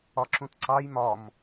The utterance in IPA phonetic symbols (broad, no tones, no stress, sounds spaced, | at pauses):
ɒ ǁ ũ t ǀ ɑ j m ɒ m